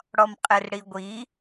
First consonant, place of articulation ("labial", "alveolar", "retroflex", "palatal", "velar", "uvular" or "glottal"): retroflex